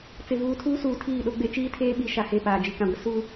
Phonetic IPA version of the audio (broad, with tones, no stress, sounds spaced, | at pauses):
t͡s ɪ˨ v uː˨ tʰ uː˦ s uː˨ tʰ iː˦˨ ɗ o˦ ɡ͡b e˦ t͡ʃ iː˦ tʰ eː˦ ɓ i˨˦ ʃ a˨ h e˦˨ p aː˨ d͡ʒ i˨ k ã˨ ɡʷ ɪ˦ s u˦